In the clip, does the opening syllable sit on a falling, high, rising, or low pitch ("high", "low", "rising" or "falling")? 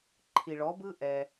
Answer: low